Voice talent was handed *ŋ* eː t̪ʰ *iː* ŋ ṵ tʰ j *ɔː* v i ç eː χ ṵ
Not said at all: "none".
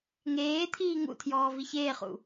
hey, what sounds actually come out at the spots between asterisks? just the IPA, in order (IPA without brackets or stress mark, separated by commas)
ŋ, iː, ɔː